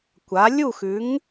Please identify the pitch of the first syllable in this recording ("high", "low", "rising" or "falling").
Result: rising